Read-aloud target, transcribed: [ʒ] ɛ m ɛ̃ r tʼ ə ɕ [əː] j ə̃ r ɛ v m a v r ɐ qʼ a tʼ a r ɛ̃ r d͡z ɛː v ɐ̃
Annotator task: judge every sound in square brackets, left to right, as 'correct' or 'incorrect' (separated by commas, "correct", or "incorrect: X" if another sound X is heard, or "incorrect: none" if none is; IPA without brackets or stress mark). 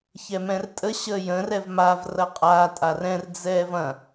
incorrect: ç, correct